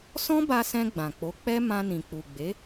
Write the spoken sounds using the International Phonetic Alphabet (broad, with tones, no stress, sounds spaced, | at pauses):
s ɔ̃˦ b a˧ s ɛ̃˧ ɡ͡b ã˨ k͡p o˨˦ k͡p ɛ˦ m ã˧ n ĩ˨ k͡p u˨ ɡ͡b e˨˦